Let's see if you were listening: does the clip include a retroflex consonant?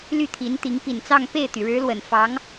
yes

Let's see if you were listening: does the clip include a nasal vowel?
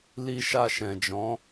yes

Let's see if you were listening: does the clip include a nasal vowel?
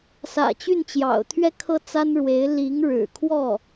no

